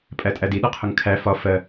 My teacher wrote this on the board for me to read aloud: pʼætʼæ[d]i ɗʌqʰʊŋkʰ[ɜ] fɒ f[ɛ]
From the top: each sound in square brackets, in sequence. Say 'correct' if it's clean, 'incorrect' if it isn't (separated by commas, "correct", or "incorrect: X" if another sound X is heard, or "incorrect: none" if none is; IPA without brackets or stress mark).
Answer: correct, incorrect: æ, incorrect: ɜ